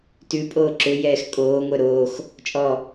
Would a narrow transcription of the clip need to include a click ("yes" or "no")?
yes